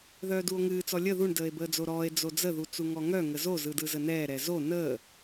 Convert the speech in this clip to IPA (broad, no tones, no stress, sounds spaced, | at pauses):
ð œː d u o̯ ŋ ɨː t͡s ɔ lʲ ə ð u ɳ d əː e̯ b əː d͡z o ɾ ɔː e̯ d͡z o d͡z ə ð u t͡s u ŋ ɔ ŋ œ ŋ ə z o z ɯ d ɯ z ə n ɛː ɾ ɛ z o n əː